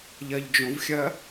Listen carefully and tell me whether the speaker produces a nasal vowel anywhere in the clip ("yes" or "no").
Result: yes